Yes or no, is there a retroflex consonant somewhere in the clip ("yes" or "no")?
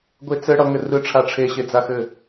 yes